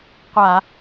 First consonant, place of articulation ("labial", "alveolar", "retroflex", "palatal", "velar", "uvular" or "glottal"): uvular